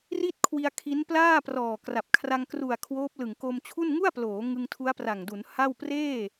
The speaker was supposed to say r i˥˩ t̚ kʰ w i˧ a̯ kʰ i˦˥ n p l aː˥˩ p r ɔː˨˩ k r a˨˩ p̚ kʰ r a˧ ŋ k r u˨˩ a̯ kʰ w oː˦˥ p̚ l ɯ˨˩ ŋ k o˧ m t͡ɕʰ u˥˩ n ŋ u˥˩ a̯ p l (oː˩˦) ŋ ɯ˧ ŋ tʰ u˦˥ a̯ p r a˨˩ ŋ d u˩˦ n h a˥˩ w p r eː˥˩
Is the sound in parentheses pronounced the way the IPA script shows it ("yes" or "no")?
yes